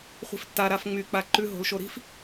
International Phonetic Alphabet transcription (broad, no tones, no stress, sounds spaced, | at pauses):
χʷ i̤ f tː a ɾ a f ŋ͡m y k͡p a ǃ ʉ ɦ o̤ l ʃ o ɾ i̤ f